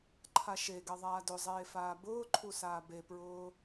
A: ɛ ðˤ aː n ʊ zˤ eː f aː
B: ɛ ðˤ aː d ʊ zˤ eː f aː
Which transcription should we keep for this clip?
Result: B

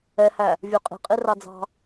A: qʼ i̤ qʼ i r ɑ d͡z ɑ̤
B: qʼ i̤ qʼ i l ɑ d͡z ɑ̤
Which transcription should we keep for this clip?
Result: A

